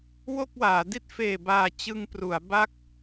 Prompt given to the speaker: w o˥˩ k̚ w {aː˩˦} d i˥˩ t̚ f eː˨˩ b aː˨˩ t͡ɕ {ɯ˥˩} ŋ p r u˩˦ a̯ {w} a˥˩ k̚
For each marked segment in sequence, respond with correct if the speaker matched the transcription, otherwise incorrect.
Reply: correct, incorrect, incorrect

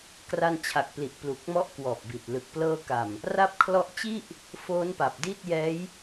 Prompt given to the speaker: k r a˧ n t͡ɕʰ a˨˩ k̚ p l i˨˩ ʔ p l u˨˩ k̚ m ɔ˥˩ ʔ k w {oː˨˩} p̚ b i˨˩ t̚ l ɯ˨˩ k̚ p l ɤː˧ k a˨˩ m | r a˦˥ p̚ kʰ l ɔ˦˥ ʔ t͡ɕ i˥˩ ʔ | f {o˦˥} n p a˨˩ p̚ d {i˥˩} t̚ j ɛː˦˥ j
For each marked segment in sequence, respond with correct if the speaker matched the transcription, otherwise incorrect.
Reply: incorrect, incorrect, correct

